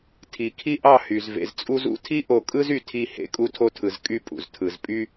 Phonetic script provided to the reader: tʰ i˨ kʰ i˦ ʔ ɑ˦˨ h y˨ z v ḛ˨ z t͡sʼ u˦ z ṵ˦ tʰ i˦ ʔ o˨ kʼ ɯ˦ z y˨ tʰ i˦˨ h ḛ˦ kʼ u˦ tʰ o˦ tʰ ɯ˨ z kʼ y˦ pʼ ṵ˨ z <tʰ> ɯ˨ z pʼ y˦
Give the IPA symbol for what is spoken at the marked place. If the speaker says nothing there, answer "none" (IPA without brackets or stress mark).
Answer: tʰ